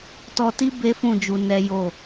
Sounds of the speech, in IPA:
t ɔ˧ t i˦ b e˦ f ũ˦˨ d͡ʒ u˧ n ɛ˦ j o˦˨

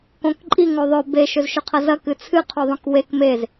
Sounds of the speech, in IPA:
k õ k ǃʼ i ŋ o ðˤ ɵ b e ʃ ɵ z ʃ ɵ qʰ ɐ z ɐ k ɨ t͡sʰ ɨ qʰ u ðˤ õ k w e k m e z

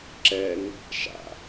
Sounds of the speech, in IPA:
ǁ ɛ n | ʃ a̰

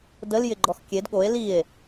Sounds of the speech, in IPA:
d ə l j ɪ ɡ͡ǃ ɔ x kʲ e d ɠ o e̯ l i e̯

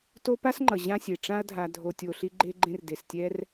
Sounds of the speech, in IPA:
t o˦ p a˥ s ŋ͡ǃ ʌ˩ ʑ ã˦ sʲ e˩ ʈ͡ʂ ã˥ ɐ̯ dʱ a˨ dʱ o˨ tʲ o˨ ɬ i˦ ɡ͡ǃ e˦ ɡ͡ǃ ẽ˦ r d e˩ s tʲ ɛ˦ r

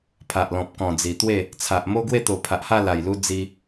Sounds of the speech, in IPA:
pʰ a˨ ʔ l ɔ̃˨ p̚ k ɔ̃˨˩ d͡z i˨˩ t̪ w e˥˧ | t͡sʰ a˨ ʔ m o˦ ɡ w e˥˧ t̪ o˨˩ pʰ a˨ ʔ h a˥˧ l a˨˩ j l u˦ d͡z i˧

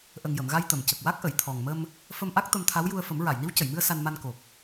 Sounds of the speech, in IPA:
ʔ ə˨˩ ŋ j ə˨˩˨ m ɣ a˧ j t̪ ə˨˩˨ m c ə˨˩ k̚ w a˦˥ k̚ ʔ ə˨˩˨ j t̪ʰ ɔ˨˩ ŋ m ə˧ m | f ə˧ m ʔ a˦˥ k̚ t̪ ə˧ m t̪ʰ a˧˥ w j u˧ ə̯ f ə˨˩˦ m ɹ a˨˩˨ j n i˧˥ w c ə˨˩˨ j m ɨ˧ ə̯ s a˧ n m a˧ n k o˨˩ k̚

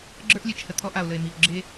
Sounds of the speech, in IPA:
ɡ͡ǁ ə˞˦ ʔ lʲ e˨ t͡ʃ h ə˨ t̪ʰ ɔ˦ ʔ a˨ o̯ l ə˨ e̯ m i˨ o̯ ɡ͡ǁ e˦

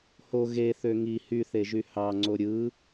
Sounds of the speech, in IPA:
h o ɣ e θ ø ŋ i h y θ e ʒ y h ɑ ŋ͡ǀ o ɾʲ ɯ

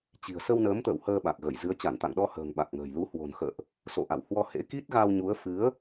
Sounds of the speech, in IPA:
t͡ɕ i̤˨˩ ə̯ s ə˧ w n əː˨˦ m t̪ ə̰ː˧˨ w h əː˧ ɓ a˨˩ k̚ ɣ ə˧˩ j z ɨ˨˦ ə̯ t͡ɕ a˧˩ n t̪ a̰˧˨ ŋ ɗ ɔ˧ h ə̤ː˨˩ ŋ ɓ a˨˩ k̚ ŋ ə̤ː˨˩ j l u˨˦ h w o̤˨˩ n x ə̰ː˧˨ ʔ | s o̰˧˨ ʔ a̰˧˨ w h w ɔ˧ h ḛ˧˥ k i˦˥ t̚ ɣ a˧ w ɲ u˨˦ ə̯ f ɨ˨˦ ə̯

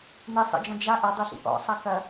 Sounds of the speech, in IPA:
n e sˤ ḛ d͡ʒ ɔ̃ d͡ʒ a ʔ ɐ dˤ e ɬ ḭ ʔ ɔ̰ sˤ ɐ k ɐ

